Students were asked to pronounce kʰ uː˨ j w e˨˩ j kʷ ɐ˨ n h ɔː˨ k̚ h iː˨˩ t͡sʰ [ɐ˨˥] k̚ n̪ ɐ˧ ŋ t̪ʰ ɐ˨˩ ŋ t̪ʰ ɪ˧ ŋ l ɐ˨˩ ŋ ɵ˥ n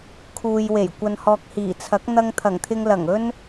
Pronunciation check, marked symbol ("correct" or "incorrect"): correct